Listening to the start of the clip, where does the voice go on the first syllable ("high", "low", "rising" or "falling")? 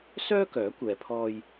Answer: high